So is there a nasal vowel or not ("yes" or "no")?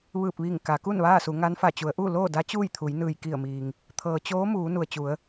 no